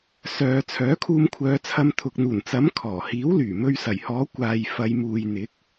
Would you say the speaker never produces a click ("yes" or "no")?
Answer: yes